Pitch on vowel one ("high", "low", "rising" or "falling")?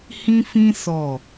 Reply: high